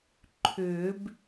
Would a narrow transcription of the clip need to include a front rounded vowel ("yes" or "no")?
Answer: yes